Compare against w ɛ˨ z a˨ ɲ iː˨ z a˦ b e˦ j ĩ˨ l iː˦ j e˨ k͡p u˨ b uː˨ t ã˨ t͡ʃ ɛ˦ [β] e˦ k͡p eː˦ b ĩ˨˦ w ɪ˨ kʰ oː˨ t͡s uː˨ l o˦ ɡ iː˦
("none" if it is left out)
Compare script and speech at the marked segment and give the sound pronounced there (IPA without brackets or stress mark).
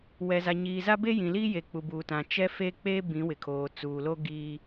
f